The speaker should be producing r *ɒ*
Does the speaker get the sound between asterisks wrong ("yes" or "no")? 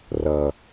yes